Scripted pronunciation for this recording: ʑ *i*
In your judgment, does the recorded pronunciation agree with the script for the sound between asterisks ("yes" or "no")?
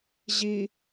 yes